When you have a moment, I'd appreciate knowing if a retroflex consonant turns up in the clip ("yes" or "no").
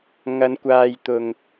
no